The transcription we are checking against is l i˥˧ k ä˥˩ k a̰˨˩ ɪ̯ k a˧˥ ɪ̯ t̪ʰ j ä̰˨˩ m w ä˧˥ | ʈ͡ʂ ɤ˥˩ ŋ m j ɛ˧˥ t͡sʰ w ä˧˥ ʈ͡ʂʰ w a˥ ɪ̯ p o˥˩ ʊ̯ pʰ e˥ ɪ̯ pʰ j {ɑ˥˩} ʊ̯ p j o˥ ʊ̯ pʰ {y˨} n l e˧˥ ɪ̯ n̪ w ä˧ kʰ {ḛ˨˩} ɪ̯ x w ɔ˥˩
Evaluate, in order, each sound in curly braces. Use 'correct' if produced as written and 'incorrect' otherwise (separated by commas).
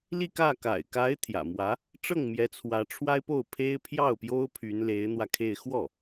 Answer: correct, incorrect, incorrect